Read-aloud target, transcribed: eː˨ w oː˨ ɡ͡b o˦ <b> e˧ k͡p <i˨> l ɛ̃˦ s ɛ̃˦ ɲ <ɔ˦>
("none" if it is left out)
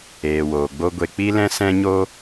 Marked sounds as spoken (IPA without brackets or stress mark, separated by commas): ɡʷ, i˦, o˦